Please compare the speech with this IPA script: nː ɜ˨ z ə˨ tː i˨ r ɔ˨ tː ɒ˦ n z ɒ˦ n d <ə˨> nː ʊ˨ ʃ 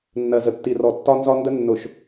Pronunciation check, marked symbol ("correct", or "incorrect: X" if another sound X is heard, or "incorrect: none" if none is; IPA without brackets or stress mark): incorrect: ə˦